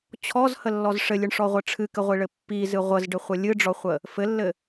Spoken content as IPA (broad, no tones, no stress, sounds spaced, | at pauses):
t͡ɕʰ ɔ z h ə lː ɔ z ʂ ɘ lʲ ɨ ɳ ʂ ɔ ʁʷ ɘ ʈ͡ʂʰ ɨ k ɘ ʁʷ i ɭ ɘ pː i z ɨ ʁʷ ə z ɖ ɘ χʷ ə lʲ ɨ ɖ͡ʐ ɔ χʷ ə | f ɘ lː ɘ